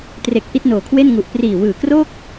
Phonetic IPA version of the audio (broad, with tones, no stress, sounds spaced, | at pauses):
t r e˨˩ k̚ ʔ i˥˩ t̚ n oː˨˩ kʰ w e˥˩ n ŋ u˨˩ ʔ p r iː˨˩ w ɯː˨˩ k r oː˥˩ k̚